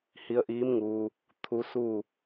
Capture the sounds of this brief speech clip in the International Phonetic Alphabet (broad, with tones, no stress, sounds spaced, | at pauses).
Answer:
h i˧ ə̯ ʔ iː˧˥ m ŋ uː˧ | t̪ʰ u˧˥ s uː˥˨